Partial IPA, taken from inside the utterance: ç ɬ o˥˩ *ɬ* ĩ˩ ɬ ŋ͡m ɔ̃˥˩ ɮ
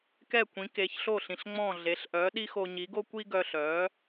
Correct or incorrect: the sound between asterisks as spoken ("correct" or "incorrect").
correct